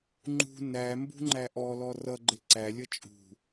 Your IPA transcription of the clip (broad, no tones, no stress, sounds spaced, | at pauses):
ŋ͡ǃ ṳ n æ m b ṳ ŋ͡ǃ æ ʔ ɔ l ɔ r ʌ ɡ͡ǃ ɪ ǀ æ lʲ ʌ t͡ʃʼ ṳ